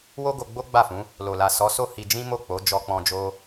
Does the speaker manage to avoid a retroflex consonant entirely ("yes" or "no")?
yes